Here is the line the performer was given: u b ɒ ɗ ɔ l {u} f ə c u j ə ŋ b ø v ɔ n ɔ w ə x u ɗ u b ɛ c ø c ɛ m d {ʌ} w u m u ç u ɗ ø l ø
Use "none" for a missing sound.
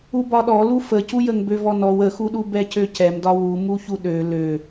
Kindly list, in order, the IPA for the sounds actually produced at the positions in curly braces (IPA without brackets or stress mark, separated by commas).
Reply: u, ɒ